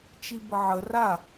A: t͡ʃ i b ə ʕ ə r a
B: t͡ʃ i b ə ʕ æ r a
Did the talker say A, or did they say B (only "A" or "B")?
A